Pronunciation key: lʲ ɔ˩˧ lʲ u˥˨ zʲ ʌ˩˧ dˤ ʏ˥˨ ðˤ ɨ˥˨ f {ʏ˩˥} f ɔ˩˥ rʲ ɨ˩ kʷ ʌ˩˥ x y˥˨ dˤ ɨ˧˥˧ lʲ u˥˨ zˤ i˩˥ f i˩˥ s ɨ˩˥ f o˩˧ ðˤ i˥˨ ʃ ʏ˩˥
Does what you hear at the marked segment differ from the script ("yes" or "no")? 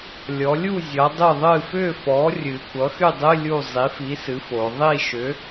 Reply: yes